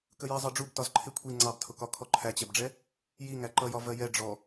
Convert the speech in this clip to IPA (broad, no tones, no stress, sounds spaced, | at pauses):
k ə j ɜ zˤ ɜ ɖ͡ʐ u b t ɒ z ǃʰ ɪ kʷʰ i ŋ͡ǀ ɑ b tʰ ʊ k ɒ kʰ ɔ ǃʰ æ t͡ɕ ɛ b ɖ͡ʐ ɛ | j i ŋ æ ǃ ʌ j ɒ v ɜ j ɛ ɖ͡ʐ ɔ